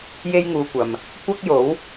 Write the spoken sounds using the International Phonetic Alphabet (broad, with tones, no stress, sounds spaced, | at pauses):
j e˥ j ŋ uː˧ kʷ ɐ˨ m | kʷ ɐ˥ k̚ j o˨˥ w